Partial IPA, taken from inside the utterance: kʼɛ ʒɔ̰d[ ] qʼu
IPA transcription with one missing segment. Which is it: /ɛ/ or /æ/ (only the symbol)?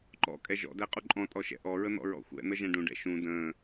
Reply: æ